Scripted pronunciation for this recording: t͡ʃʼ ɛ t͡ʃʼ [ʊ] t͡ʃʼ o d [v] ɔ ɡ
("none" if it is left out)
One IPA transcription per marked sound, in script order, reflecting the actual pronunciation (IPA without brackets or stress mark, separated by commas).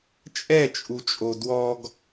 u, w